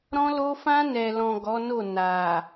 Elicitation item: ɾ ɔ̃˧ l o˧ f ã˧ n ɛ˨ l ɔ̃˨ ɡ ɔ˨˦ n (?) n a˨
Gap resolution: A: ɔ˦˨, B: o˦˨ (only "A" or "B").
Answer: B